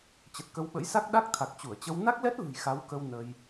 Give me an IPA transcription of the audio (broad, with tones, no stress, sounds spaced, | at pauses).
t͡ɕ ə˨˩ t̚ k ə˧ w ɓ ə̰˧˥ j s a˦˥ k̚ ɗ a˦˥ k̚ t̪ʰ a˨˩ k̚ t͡ɕ u˧˩ ə̯ t͡ɕ ə˧ w n a˦˥ k̚ l ɛ˦˥ t̚ l ɨ̤˨˩ j x a˨˦ w k ə˧ w n ə˧ j